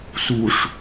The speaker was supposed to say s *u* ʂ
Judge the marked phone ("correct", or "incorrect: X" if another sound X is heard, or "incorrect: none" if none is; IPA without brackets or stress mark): correct